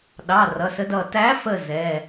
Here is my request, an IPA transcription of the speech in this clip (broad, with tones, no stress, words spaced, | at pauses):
ɗɑ˩˧˩ rʌ˩˧˩sə˨˥dʌ˧˩ tæ˨˥fə˧˩ zɛ˩˧˩